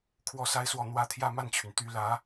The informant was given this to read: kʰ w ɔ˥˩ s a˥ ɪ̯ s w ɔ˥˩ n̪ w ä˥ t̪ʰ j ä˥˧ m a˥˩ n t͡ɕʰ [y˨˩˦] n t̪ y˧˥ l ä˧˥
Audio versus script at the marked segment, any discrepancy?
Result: yes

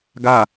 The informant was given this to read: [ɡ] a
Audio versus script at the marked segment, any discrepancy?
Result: no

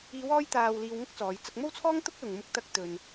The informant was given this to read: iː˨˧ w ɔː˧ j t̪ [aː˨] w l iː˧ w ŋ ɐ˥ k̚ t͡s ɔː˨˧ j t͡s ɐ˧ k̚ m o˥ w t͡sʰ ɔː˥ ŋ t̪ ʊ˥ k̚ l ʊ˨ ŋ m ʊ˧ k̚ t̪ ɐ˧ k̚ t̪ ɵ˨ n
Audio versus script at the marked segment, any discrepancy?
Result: no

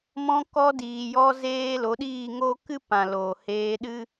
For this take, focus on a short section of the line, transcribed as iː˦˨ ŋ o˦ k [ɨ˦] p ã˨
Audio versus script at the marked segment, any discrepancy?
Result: no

